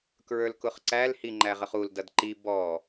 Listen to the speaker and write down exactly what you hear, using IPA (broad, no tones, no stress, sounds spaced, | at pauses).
k ɹ ə˞ l k ʊ χ ǀ æ l h i ŋ͡ǃ æ ʁ ə χ u l d ʌ d ǃ i b ɔ